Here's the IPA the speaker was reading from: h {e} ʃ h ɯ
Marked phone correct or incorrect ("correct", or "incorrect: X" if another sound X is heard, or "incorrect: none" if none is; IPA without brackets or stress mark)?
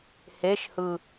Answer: correct